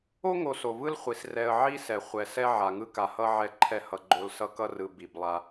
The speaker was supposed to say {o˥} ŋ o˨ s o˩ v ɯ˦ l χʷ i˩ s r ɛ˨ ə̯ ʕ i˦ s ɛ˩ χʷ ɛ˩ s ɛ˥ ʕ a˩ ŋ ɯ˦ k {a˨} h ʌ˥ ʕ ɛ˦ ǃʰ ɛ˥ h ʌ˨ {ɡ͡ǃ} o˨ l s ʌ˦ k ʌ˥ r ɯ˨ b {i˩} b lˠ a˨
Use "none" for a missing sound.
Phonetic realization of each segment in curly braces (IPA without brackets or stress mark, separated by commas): o˥, a˨, ɡ͡ǃ, i˩